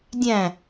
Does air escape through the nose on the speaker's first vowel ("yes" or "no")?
yes